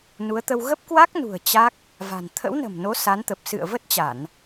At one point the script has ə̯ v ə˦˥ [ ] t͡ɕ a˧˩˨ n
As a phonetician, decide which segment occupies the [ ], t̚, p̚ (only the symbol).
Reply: t̚